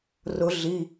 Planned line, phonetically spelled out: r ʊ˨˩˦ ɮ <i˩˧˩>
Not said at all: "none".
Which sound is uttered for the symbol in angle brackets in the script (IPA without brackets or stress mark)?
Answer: i˩˧˩